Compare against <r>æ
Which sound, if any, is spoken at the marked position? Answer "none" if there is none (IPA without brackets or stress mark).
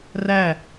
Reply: r